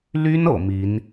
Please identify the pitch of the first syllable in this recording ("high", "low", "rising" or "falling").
high